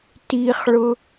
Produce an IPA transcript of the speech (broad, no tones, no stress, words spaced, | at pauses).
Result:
tiχɭʊ